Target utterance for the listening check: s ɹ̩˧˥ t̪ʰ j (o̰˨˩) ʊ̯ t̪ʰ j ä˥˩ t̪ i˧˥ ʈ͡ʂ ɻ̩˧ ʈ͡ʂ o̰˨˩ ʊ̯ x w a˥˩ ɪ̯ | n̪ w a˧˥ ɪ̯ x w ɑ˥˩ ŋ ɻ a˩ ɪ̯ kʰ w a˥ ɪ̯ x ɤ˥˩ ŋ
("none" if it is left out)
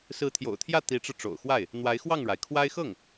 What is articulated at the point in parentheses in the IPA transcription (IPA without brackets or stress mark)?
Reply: o̰˨˩